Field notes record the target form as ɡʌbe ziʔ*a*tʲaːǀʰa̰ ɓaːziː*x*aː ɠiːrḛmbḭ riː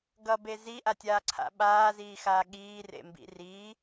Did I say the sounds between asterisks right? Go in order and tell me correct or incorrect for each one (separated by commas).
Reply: correct, correct